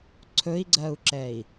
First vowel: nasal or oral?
oral